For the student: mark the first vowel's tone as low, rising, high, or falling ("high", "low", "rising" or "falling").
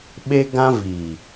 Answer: high